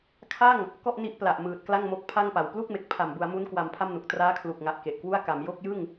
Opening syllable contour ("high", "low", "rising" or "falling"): falling